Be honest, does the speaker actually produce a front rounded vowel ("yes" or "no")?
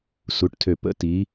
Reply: yes